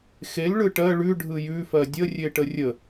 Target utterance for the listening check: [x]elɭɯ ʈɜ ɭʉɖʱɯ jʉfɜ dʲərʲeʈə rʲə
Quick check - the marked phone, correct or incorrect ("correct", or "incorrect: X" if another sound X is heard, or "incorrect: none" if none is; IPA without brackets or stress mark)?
correct